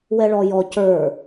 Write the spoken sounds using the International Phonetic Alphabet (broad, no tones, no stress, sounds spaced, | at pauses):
w ɛ ɭ ɔ j ɔ c ə˞